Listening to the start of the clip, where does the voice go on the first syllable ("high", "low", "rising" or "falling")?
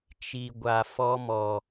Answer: low